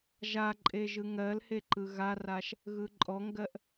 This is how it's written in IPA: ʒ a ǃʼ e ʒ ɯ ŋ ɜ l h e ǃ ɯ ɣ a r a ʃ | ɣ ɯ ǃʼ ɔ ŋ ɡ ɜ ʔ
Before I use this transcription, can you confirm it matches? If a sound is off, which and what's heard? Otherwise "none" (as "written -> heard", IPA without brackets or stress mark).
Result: none